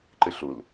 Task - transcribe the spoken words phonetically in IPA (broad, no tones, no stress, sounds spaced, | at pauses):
ǃ ɨ ɬ u l